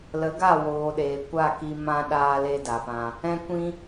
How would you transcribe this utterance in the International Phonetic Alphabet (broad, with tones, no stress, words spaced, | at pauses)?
lə˨˦ɡa˦˨woː˨ ɗeː˨kʷa˦˨ki˧ mã˧ ɗaː˦le˦da˨pã˧ | ɛ̃˧kʷĩ˧